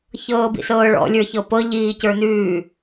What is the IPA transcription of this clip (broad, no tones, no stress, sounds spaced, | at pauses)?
ç ɤː b ḭ s ɤː ɭ ɔ̰ lʲ ə˞ ç ɤ p ɤ ʎ iː c ə˞ n ʉː